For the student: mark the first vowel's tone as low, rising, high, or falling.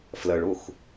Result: low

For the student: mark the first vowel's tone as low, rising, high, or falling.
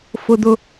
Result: low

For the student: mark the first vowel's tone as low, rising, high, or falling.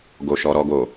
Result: low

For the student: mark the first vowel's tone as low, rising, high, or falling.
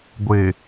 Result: low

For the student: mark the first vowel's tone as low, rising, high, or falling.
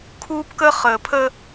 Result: high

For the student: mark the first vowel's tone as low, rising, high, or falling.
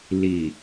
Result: low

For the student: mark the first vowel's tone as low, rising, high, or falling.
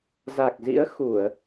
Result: low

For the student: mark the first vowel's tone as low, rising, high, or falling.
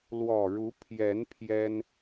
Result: low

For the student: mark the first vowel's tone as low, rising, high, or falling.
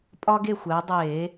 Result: high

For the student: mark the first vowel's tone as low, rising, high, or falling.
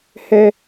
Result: high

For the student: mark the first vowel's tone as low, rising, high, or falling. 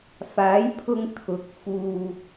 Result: rising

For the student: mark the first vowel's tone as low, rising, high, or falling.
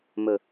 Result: low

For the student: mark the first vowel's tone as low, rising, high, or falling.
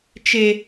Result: high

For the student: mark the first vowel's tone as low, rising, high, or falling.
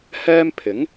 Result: high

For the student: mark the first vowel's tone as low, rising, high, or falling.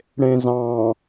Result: low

